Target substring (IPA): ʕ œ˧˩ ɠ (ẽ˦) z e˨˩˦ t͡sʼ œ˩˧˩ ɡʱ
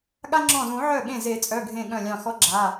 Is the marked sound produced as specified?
no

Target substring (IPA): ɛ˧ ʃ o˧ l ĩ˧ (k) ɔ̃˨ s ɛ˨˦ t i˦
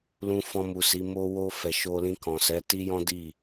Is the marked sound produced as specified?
yes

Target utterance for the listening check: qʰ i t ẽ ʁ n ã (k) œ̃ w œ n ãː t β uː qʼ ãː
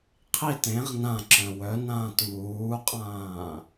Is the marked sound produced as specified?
no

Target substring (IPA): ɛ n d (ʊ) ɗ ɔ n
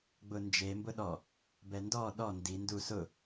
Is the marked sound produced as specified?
no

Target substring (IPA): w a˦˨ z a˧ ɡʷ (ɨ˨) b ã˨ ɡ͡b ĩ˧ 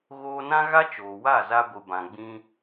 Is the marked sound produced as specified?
yes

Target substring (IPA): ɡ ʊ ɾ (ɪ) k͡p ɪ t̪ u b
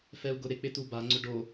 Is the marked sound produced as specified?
yes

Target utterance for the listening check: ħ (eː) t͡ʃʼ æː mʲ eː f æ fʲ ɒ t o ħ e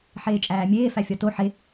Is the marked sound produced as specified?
yes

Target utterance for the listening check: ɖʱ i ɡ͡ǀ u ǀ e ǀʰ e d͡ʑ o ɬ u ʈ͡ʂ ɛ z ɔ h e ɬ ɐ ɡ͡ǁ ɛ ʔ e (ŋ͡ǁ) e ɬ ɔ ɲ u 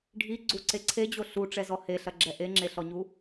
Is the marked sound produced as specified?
yes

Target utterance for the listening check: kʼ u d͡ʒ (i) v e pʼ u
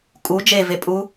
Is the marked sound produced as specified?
no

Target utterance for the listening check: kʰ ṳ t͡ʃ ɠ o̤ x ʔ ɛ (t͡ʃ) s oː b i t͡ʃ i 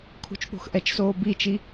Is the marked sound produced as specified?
yes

